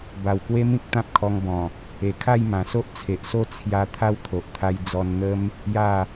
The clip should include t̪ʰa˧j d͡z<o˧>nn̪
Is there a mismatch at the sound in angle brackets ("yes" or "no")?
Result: yes